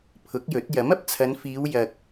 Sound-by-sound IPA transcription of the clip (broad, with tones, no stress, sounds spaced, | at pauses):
pʰ ʊ˨˥ k̚ j ɵ˨˥ t̚ j ɐ˨˥ m ɐ˨ p̚ t͡sʰ ɐ˨˧ n f iː˨˧ w j ɐ˨ k̚